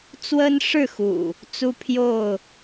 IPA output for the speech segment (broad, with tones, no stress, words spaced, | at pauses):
t͡swə˦nʂɻ̩˥˨xṵ˨˩ | t͡su˦pʰjo˥˨ʊ̯